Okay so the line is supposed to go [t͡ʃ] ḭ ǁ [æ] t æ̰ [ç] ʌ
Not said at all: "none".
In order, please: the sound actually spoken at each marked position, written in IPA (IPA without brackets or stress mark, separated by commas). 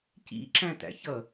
c, æ̃, ç